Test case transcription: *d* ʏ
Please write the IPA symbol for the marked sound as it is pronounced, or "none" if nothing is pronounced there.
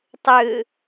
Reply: tˤ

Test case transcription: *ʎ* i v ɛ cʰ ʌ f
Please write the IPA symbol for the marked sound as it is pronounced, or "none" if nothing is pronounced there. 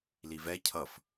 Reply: l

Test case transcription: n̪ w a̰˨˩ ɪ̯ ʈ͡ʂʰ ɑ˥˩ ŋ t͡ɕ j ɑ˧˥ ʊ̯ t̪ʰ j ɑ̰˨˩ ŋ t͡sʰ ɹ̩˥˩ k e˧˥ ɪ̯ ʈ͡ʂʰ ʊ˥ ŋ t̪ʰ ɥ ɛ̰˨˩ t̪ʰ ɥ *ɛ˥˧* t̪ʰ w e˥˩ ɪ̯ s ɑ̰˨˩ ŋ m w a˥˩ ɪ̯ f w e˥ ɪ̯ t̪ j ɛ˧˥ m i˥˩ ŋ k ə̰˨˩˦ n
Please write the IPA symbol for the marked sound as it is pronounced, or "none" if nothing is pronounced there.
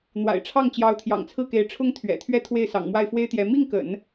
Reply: ɛ˥˧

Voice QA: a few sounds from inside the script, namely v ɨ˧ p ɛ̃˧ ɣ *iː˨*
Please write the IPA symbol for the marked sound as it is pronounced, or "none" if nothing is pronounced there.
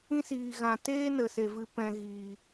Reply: iː˨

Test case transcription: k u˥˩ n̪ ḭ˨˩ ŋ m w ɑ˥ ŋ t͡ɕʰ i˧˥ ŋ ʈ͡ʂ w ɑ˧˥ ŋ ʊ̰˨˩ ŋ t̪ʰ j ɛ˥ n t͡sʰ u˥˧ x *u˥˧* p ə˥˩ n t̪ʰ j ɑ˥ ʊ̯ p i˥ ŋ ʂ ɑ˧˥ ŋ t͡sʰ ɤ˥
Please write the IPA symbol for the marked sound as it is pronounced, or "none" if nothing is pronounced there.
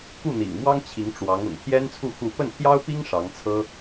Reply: u˥˧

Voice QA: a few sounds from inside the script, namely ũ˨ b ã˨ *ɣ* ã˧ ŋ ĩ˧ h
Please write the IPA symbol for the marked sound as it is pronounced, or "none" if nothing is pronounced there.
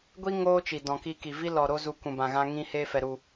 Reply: ɣ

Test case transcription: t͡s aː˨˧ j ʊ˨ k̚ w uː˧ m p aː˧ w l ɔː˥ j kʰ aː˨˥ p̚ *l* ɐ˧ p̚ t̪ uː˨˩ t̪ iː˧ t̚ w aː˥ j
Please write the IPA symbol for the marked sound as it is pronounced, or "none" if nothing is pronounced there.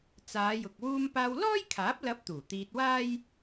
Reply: l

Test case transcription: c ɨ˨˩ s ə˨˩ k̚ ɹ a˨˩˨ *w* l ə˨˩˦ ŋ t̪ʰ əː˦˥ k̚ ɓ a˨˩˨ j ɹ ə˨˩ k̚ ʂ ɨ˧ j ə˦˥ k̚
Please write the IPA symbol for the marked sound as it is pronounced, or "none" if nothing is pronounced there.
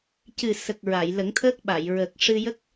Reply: j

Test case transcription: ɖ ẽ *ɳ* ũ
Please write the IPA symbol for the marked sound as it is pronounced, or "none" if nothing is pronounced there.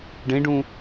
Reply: ɖ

